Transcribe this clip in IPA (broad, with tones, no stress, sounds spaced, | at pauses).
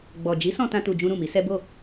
ɡ͡b ɔ˨ d͡ʒ i˨˦ s ɔ̃˧ t ã˦ t u˧ d͡ʒ ũ˦ ɾ ũ˦˨ m i˨˦ s ɛ˦ b o˦˨